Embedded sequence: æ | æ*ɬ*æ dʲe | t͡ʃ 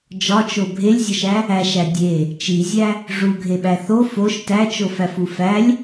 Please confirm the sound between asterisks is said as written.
no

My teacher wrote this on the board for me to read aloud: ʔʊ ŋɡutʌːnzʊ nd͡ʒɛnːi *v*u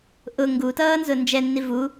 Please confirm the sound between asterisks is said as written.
yes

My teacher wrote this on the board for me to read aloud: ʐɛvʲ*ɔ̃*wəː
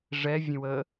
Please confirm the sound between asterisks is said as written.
no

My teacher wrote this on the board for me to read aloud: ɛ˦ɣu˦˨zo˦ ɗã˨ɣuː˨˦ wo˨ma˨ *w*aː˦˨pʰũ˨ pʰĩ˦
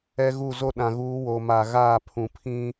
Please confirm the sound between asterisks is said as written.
no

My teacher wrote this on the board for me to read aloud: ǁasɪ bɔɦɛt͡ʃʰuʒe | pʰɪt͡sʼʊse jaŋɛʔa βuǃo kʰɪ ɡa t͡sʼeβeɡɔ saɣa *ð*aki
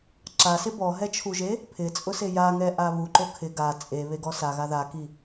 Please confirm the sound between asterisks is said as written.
yes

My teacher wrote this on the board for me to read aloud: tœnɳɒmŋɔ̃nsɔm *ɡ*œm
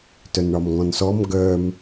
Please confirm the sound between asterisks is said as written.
yes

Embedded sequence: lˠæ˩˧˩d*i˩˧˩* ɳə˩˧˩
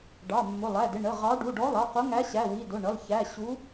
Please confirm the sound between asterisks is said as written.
no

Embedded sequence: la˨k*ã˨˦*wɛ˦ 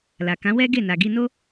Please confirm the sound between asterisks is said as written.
yes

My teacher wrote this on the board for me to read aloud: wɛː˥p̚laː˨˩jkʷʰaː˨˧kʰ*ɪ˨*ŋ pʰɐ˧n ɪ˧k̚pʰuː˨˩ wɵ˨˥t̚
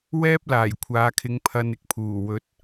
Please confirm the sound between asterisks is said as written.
no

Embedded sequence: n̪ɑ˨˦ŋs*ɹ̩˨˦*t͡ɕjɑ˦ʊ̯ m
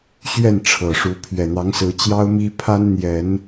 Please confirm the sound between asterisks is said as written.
yes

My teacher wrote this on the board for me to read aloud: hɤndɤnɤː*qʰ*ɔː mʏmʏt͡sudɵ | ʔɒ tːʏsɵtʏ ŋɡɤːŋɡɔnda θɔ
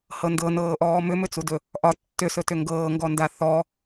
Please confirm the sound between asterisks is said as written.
no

